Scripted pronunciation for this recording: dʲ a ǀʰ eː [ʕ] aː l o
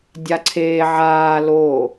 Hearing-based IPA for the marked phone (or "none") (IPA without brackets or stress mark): ʕ